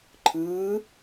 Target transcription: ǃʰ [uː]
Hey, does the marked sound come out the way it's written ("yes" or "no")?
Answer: no